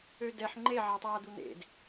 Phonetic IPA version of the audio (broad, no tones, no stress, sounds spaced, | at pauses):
ø d ɛ ħ ŋ͡ǃ e ʕ a tˤ aː d̪ u n̪ ḛ d